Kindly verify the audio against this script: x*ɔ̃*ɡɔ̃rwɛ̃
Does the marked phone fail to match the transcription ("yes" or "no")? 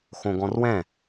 yes